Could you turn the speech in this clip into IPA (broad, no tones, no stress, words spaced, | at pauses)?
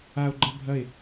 ao̯ɡ͡ǃɐ bʱɐe̯